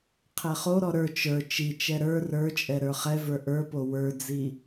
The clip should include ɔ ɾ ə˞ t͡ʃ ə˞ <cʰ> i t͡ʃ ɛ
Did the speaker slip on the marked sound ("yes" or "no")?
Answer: yes